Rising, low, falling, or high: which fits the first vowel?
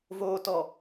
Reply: low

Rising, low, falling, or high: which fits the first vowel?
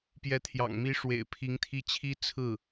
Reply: rising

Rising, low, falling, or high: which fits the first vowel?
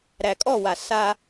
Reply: low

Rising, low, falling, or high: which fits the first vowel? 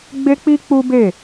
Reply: high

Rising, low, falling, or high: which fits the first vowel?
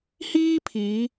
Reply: high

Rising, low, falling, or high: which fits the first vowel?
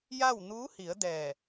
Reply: falling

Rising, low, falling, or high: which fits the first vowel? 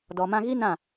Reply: low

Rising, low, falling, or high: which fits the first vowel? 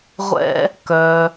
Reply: high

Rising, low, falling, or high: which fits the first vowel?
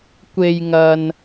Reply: low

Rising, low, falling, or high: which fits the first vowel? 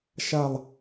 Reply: falling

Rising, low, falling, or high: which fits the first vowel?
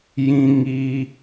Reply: high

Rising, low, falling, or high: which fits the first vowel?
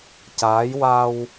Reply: rising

